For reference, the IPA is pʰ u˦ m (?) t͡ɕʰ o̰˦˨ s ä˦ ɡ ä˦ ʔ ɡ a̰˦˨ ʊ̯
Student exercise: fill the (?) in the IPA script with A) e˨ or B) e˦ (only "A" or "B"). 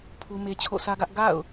B